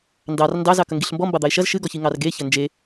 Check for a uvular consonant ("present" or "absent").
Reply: absent